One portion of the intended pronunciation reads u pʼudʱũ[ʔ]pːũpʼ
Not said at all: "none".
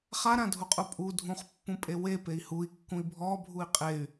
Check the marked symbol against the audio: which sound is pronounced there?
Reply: χ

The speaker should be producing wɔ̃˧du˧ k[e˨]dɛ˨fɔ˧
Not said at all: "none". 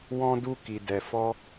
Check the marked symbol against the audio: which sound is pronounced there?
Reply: i˨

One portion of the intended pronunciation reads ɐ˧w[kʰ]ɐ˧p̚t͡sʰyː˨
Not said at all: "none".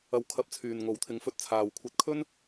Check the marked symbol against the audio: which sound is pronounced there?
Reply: kʰ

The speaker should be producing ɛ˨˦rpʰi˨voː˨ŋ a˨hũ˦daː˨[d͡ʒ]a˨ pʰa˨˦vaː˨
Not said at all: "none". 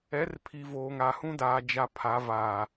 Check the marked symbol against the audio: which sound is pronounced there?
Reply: d͡ʒ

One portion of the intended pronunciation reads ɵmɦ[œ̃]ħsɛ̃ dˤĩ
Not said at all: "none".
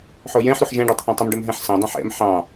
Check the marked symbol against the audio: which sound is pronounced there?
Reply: ɛ̃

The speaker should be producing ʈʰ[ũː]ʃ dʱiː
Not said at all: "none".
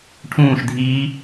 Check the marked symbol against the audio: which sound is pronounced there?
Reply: ũː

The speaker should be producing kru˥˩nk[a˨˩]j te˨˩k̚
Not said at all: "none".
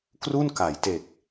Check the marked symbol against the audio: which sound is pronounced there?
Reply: a˩˦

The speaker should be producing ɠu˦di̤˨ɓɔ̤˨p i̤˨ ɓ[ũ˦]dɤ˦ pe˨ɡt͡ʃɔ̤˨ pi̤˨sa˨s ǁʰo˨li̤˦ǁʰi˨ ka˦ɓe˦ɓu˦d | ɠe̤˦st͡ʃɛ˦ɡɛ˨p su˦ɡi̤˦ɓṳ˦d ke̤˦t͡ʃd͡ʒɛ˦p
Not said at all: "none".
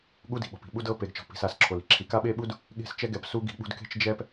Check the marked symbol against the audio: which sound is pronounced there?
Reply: u˦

